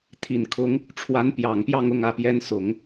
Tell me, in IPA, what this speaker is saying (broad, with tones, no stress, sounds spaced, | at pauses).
t̪ʰ i˨˩ n kʰ ʊ˧˥ ŋ | ʈ͡ʂʰ w a˧˥ n p j ɑ˨˩ ŋ p j ɑ˥˧ ŋ ʊ˥˧ ŋ ä˥˩ p j ɛ˥ n s ʊ˨˩˦ ŋ